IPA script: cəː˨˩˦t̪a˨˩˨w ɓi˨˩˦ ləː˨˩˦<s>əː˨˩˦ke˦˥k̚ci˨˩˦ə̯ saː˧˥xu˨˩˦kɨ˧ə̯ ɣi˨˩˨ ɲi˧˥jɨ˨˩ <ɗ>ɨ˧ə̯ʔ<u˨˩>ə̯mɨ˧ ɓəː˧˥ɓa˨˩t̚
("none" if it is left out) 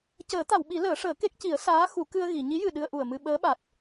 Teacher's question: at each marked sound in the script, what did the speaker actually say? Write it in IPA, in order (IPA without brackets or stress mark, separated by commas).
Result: ʂ, ɗ, u˨˩